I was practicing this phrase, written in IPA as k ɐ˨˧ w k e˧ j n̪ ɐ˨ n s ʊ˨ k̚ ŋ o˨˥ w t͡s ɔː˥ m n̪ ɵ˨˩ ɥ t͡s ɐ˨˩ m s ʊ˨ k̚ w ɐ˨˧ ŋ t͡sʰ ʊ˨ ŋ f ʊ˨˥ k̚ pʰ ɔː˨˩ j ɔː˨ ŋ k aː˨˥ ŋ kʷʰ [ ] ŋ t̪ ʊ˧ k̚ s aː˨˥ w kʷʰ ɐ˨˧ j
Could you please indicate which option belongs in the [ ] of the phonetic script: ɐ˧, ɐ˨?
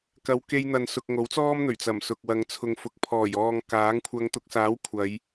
ɐ˧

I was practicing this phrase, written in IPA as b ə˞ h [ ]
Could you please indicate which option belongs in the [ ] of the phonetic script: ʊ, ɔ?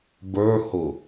ʊ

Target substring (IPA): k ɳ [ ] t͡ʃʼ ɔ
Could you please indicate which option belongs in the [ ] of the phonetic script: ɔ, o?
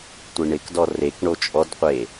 o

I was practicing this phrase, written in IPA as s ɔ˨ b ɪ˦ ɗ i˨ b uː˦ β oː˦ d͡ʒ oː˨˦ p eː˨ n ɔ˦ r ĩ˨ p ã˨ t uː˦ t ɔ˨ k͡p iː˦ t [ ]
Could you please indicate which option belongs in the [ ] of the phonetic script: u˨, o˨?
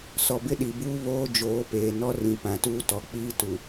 u˨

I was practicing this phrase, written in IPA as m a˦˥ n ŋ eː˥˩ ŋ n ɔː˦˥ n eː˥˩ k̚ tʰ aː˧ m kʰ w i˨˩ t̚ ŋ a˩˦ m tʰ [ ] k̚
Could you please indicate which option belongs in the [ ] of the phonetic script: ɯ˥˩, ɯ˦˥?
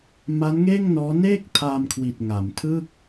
ɯ˥˩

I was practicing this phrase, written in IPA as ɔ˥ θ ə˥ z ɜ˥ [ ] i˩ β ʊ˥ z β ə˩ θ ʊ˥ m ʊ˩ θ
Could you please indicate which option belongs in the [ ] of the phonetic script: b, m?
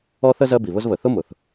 b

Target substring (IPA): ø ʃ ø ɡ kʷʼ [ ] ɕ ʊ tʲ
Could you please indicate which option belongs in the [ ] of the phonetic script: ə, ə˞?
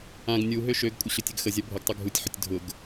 ə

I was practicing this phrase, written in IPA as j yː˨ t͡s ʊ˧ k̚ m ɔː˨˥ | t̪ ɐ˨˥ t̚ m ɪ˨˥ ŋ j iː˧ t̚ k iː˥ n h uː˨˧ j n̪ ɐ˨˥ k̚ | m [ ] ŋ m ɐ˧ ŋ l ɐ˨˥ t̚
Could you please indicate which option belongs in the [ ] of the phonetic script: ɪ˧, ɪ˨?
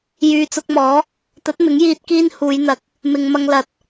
ɪ˨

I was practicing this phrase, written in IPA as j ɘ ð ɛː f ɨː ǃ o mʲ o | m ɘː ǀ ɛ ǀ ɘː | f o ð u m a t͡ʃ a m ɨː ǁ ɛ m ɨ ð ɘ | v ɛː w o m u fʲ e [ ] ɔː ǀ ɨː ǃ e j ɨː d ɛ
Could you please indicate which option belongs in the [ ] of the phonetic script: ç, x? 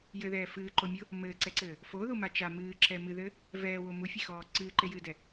x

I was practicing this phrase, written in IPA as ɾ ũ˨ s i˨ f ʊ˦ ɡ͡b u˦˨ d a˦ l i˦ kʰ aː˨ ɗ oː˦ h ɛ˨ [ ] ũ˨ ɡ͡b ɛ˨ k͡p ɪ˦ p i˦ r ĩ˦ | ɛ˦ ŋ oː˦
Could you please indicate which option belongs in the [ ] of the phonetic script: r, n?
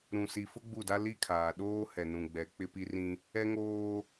n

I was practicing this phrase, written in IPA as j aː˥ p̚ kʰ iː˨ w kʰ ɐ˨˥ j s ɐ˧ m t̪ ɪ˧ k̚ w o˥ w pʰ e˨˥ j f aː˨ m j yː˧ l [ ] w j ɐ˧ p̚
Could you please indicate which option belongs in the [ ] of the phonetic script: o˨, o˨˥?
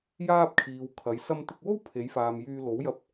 o˨˥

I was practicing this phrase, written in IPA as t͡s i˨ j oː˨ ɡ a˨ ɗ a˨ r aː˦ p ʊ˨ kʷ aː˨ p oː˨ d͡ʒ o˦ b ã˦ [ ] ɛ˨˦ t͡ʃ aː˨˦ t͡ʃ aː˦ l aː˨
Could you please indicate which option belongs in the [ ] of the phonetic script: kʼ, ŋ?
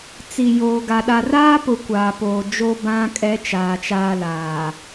kʼ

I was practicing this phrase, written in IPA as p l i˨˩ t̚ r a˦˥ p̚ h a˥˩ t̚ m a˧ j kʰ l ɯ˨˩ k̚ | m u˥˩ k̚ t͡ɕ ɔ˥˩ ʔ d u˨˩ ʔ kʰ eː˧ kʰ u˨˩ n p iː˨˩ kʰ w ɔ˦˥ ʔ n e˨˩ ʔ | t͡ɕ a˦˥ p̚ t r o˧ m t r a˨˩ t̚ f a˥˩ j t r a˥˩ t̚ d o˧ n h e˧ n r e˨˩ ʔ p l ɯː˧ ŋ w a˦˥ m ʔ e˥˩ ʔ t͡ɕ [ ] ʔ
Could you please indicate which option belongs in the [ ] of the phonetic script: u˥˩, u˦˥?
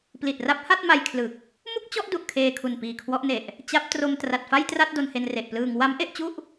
u˥˩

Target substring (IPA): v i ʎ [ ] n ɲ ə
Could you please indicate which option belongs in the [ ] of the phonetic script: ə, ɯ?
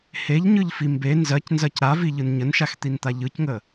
ɯ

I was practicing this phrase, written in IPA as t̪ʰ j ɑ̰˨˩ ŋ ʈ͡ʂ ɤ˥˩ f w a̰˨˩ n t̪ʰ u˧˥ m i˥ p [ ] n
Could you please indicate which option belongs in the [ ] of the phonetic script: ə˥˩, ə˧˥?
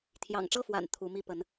ə˧˥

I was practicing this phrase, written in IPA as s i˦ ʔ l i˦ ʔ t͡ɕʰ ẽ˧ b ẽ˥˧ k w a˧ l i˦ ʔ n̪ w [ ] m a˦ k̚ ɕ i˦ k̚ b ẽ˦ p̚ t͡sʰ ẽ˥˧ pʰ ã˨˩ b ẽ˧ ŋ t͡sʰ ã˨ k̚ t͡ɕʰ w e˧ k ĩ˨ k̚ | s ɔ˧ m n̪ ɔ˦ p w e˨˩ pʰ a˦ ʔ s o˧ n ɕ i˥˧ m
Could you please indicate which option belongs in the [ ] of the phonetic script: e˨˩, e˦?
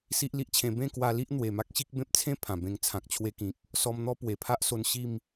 e˨˩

